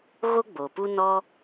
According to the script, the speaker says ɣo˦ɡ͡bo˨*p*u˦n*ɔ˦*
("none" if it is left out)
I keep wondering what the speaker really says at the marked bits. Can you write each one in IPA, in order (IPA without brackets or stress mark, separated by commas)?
p, ɔ˦